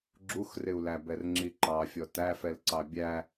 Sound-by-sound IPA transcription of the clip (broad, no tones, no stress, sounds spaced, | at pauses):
ɡ͡ǁ u x r ɪ u̯ l æ b ɛ r ŋ͡ǁ i ǃ ɑ fʲ ɔ t æ f ɛ l ǀ ɑ bʲ æ